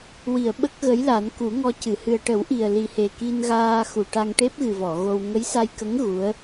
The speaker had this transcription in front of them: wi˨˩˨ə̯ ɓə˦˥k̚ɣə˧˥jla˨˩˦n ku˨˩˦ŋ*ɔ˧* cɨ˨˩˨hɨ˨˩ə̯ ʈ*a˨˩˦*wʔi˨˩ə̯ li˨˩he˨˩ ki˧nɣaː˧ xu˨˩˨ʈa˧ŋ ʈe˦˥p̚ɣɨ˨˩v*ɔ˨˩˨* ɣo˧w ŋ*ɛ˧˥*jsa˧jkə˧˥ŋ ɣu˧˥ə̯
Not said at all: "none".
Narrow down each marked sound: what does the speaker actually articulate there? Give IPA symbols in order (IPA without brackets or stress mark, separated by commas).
ɔ˧, ə˨˩˦, ɔ˨˩˨, ə˧˥